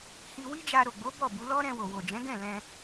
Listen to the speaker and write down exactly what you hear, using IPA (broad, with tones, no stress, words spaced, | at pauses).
hi˧ wi˦d͡ʒa˧ ɾo˨ɡ͡bo˨˦ bɔ˦˨bu˨˦ lɔ˦ɾɛ̃˧wo˨ wo˨d͡ʒɛ̃˨˦ɡɛ̃˦˨ lɛ̃˧